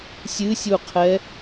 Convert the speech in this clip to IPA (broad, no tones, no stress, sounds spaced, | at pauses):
sʲ ɨ sʲ u qʰ ɛ